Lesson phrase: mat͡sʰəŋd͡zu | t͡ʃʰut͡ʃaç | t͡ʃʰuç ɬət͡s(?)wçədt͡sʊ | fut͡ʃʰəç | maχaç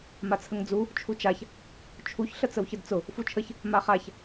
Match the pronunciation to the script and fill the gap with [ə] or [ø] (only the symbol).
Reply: ə